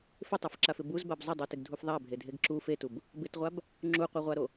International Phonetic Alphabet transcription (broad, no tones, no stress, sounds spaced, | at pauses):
f ɪ tˤ o f ǁ a f ɪ b u z b a b zˤ ʊ dˤ o t ɪ ɡ dʱ u f ðˤ a bʱ e dʱ e ɡ ǁ u f e t u b | b ɪ t ʁʷ a b | ŋ͡ǁ u qʷ a ʁʷ a ɾ o